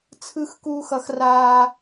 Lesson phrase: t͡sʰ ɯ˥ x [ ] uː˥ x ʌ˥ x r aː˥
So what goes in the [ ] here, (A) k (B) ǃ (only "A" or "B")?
A